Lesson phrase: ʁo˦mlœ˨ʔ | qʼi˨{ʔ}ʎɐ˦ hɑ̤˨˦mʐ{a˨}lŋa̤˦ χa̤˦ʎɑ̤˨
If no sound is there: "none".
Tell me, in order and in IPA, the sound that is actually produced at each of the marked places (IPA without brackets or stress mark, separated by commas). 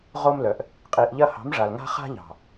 ʔ, a˨